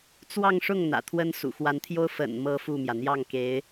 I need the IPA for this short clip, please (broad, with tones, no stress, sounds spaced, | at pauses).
t͡s w ɑ˥˧ ŋ ʂ ʊ˥˩ ŋ n̪ ä̰˨˩ t̪ʰ w ə˥ n s ṵ˨˩ x w a˧˥ n t̪ʰ j o˥ ʊ̯ f ə̰˨˩ n m ɤ˥ f u˥˩ m j ä˩ n̪ j ɑ˥˩ ŋ k e˧˥ ɪ̯